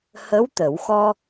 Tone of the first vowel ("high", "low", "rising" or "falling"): rising